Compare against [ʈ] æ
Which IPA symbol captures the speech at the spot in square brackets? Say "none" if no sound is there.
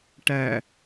ʈ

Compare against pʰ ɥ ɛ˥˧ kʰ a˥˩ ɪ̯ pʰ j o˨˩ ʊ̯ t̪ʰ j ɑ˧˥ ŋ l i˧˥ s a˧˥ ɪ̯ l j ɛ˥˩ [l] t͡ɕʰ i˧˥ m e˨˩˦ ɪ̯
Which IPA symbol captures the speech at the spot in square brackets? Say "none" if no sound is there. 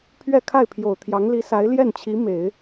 n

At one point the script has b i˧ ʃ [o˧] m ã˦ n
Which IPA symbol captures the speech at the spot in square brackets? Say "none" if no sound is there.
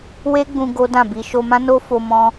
o˧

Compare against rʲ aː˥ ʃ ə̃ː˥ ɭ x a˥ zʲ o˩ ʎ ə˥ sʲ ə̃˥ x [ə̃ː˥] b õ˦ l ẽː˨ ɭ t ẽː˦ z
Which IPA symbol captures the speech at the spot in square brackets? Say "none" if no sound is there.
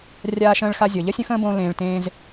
ə̃ː˥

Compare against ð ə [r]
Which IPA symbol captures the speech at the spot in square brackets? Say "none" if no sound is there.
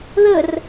r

